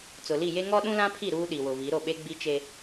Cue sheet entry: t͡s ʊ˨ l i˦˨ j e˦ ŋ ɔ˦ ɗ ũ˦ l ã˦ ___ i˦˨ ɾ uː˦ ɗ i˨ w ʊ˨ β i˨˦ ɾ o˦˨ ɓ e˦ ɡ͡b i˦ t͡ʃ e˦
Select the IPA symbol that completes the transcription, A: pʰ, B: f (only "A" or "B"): A